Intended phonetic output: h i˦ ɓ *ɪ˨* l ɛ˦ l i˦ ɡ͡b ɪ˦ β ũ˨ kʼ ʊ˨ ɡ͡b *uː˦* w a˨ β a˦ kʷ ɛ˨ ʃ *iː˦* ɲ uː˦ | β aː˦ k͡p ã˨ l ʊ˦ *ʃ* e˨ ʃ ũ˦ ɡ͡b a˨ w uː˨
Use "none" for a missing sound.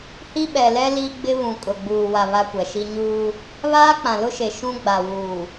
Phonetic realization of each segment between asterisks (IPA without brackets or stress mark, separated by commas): ɛ˨, uː˨, i˦, ʃ